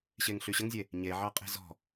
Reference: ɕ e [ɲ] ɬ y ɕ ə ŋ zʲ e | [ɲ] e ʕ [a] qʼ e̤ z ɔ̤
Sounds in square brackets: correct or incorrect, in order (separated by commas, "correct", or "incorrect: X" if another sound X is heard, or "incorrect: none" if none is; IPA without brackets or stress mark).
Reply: incorrect: ŋ, correct, incorrect: ɑ